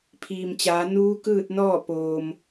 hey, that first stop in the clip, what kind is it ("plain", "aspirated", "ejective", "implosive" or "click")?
aspirated